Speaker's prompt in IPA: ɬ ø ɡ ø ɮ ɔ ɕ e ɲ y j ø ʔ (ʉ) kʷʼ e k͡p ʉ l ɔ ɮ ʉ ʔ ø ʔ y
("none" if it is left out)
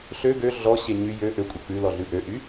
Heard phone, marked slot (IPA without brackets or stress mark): ø